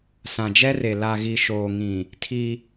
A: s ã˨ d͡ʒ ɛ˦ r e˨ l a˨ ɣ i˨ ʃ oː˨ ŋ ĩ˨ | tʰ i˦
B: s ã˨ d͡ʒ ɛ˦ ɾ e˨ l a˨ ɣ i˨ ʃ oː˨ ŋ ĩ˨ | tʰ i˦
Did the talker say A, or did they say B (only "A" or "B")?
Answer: A